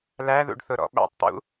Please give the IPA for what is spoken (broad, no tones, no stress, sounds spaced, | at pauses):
l æ ð ṵ ɖ θ ʊ ɾ ɔ̰ ɓ æ̰ tˤ t̪ ṵ